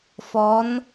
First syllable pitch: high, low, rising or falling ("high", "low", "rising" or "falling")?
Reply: rising